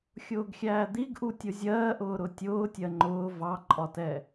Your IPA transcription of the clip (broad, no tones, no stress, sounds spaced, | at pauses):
xʲ ʊː ɡ xʲ æː d̪ i ɡ ʔ u tʲ ʊ zʲ ɜː ʔ ʊː ɾ ʊ tʲ ʊː tʲ ɜ ŋ͡ǃ ʊː v ɑ ǃʼ ɒ t ɛ